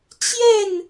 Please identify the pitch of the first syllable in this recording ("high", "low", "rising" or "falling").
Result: falling